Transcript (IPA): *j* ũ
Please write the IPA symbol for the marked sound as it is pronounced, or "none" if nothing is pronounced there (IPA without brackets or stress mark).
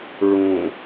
ɹ